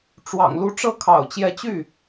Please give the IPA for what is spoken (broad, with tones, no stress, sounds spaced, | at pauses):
ʈ͡ʂ w ɑ̰˨˩ ŋ l u˧˥ ʈ͡ʂ ɤ˥˩ kʰ ɑ̰˨˩ ʊ̯ t͡ɕ j ɛ˧˥ t͡ɕ y˥˩